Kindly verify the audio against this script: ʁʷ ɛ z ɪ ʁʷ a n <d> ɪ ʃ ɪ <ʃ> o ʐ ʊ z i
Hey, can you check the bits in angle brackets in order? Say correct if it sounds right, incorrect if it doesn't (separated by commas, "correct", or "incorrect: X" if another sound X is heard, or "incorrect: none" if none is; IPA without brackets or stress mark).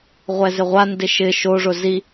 correct, correct